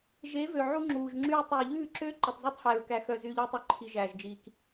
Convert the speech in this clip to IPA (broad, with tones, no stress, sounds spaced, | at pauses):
ʒ e˨˦ v ø˨ ʕ u˦ ŋ͡ǁ uː˨ ʒ ŋ͡ǁ yː˦ tˤ uː˨ ʎ ʉː˦˨ ǁ øː˦ ǃ e˨ tˤ z æ˦ tˤ h æː˨ ɹ k æ˨ x œ˨ z yː˦ ʎ uː˦ tˤ œ˦ ǃʰ i˨ ʒ æː˨ ʒ d͡ʒ iː˨ k